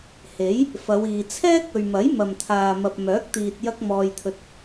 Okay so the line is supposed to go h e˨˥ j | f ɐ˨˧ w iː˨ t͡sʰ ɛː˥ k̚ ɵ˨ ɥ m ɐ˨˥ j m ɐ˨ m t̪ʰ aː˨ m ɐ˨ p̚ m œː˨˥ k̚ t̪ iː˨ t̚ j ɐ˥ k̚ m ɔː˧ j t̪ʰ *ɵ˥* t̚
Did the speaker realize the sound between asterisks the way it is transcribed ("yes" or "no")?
no